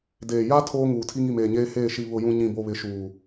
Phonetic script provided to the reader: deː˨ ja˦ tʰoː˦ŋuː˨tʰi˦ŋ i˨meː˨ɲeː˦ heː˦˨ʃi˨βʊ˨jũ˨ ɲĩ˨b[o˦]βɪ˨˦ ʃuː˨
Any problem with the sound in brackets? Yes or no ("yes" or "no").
yes